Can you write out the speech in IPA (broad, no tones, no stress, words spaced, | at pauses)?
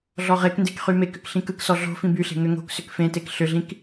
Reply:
ɮɔʁekndek χymekʏk ɬĩkɯksɔ ɮo̤ fĩbyɬe̤ ŋʏŋo̤ksʏk fẽtek ɬʏɮĩk